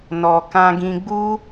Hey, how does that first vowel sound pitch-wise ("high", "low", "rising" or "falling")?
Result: low